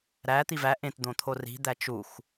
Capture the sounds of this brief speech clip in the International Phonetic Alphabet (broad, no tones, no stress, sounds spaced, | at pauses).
ɾ æ t̪ i v æ ʔ ẽ t d̪ õ t̪ʰ o r i̤ d̪ æ t͡ʃ u x